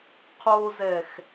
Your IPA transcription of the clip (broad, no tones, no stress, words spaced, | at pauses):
qʰozɛx